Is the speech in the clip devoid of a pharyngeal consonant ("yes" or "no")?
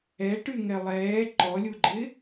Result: yes